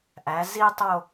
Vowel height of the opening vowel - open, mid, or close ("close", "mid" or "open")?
open